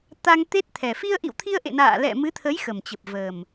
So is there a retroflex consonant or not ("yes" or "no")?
no